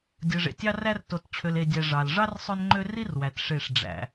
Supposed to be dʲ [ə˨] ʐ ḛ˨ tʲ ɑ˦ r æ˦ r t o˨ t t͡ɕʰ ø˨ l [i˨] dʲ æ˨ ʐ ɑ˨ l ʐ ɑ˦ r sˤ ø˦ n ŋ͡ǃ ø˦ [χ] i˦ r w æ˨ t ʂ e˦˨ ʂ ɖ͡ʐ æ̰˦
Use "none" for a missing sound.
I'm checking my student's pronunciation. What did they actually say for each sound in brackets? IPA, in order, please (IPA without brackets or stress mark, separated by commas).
ɯ˨, e˨, r